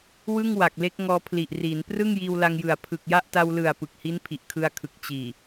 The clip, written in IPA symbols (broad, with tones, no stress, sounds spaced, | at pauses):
w ɯ˥˩ ŋ w a˨˩ k̚ l e˦˥ k̚ ŋ ɔː˧ pʰ l i˨˩ ʔ r iː˩˦ n p r ɯ˥˩ ŋ j iː˧ w l a˧ ŋ j ɯ˨˩ a̯ pʰ ɯ˨˩ k̚ j a˥˩ ʔ t a˧ w l ɯ˨˩ a̯ p ɯ˨˩ k̚ h i˦˥ n pʰ i˨˩ ʔ kʰ ɯ˧ a̯ kʰ ɯ˨˩ k̚ t͡ɕ iː˨˩